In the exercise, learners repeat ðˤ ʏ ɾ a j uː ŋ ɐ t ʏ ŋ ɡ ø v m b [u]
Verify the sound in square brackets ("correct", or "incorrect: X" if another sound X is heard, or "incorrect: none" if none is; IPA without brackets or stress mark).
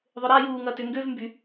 incorrect: y